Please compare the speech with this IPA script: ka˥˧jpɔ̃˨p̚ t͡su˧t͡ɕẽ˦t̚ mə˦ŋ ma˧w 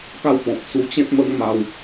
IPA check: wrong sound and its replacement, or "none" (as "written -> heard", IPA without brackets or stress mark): j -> w